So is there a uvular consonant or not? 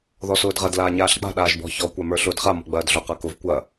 yes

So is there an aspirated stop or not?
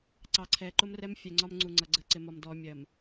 yes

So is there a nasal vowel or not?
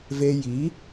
no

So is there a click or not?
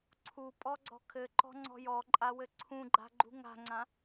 yes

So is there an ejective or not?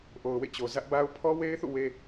no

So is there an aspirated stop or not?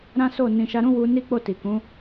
no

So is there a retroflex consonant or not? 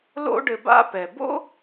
yes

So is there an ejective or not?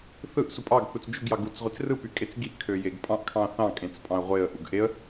yes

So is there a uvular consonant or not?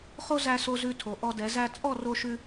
yes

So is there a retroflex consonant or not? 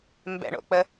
yes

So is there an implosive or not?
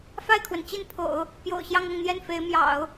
no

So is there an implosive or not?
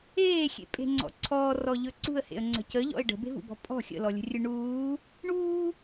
no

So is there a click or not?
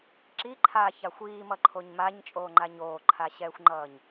yes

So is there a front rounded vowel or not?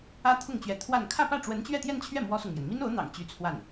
yes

